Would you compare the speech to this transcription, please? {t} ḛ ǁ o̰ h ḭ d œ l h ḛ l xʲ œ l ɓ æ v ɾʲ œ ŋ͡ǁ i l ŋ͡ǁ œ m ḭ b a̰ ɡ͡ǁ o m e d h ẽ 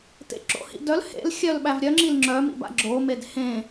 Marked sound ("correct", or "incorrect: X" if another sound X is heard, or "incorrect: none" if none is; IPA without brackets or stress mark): correct